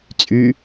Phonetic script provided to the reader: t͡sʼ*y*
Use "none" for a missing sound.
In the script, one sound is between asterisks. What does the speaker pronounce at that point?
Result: y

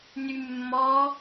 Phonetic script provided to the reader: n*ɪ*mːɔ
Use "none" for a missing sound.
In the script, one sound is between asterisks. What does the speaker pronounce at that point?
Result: y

